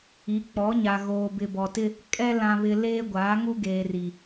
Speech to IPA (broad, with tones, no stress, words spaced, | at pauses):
i˨˦k͡pɔ˨˦ɲa˨ ɣoː˨bɪ˨bɔ˨tɪ˦ | kʼɛ˦ lã˨βɪ˨ leː˦ ɡʷaː˨˦ŋu˦ɡeː˨ri˨